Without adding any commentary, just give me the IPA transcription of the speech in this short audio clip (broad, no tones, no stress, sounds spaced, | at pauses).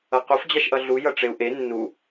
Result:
ʌ q o f d͡ʑ a ʃ ʔ ʌ ɮ u j ʌ ʈ͡ʂ e u̯ ʔ e nː u